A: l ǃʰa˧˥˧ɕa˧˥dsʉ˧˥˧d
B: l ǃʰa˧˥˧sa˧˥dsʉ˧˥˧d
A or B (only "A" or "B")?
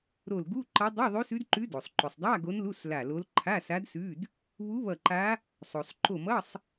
B